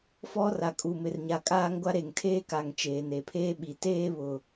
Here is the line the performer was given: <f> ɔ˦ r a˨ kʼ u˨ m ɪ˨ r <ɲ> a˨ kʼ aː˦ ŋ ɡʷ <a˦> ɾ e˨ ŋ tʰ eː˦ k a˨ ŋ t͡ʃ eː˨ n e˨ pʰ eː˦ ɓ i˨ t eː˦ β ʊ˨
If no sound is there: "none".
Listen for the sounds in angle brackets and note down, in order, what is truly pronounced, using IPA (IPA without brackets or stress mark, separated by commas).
f, ɲ, a˦